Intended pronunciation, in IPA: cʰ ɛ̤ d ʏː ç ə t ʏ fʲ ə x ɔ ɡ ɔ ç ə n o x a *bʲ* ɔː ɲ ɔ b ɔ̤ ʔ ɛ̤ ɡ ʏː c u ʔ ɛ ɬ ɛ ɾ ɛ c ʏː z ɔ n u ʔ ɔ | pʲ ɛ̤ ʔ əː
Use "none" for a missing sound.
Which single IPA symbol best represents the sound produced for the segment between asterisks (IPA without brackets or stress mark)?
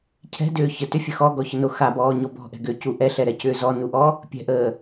b